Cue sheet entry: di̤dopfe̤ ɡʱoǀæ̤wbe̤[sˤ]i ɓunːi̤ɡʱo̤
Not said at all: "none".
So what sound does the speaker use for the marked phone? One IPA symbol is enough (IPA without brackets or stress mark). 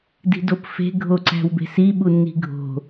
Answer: s